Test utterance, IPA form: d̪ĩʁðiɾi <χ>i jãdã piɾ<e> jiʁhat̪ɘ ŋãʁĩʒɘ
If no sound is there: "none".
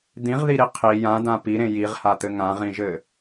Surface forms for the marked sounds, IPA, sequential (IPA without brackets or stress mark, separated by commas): qʰ, ẽ